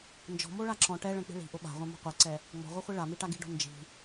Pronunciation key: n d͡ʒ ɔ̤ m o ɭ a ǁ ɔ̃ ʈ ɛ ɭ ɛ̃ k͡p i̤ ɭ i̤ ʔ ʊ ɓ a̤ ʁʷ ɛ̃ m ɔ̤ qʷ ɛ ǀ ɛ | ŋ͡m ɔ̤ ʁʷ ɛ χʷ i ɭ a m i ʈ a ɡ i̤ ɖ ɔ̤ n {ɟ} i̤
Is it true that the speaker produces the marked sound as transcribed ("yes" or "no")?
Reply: no